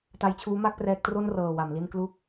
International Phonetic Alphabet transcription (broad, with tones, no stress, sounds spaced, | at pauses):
t a˧ j t͡ɕʰ uː˦˥ m a˥˩ k̚ p r ɛː˦˥ k̚ t r o˥˩ n r ɤː˨˩ w a˩˦ m l i˥˩ n k l u˥˩ k̚